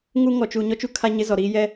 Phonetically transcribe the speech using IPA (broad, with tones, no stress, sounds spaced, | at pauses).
ŋ u˦ ŋ ɔ˨ t͡ʃ u˨ ɲ ɔ˦ t͡ʃ u˦ kʰ a˦ ɲ ɪ˦ z ɔ˨ ɾ iː˦ j ɛ˦